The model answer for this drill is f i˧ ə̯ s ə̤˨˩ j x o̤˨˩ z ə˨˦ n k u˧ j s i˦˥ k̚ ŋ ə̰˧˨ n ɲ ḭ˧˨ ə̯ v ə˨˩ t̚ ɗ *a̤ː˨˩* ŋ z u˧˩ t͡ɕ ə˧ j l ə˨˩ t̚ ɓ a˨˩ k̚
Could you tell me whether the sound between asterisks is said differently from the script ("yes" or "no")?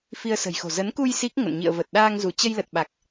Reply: yes